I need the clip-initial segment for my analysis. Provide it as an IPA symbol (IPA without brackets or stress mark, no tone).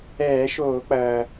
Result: ɛː